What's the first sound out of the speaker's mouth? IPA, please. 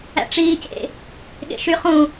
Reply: æ̰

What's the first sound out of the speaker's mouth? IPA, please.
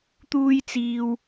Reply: t̪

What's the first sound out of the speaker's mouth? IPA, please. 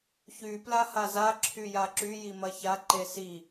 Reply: ç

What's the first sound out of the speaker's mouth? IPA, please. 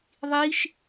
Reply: ðˤ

